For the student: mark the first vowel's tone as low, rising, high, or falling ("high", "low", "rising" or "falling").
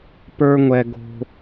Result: high